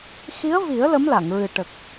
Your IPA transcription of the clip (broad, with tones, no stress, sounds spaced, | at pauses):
x i˧˥ ə̯ v i˨˩˦ ə̯ l ə˧˥ m l a˨˩˨ ŋ ɹ ɨ˨˩ ʈ ə˨˩ k̚